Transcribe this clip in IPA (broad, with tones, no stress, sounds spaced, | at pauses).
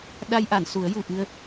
ɗ a˧ j ʔ a˨˩˨ n s u˨˩˦ ə̯ j u˨˩ ʔ ɨ˧ ə̯